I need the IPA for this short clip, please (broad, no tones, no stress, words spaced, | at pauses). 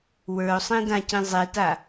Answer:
wə˞o̯sˤĩdãcĩ zˤeta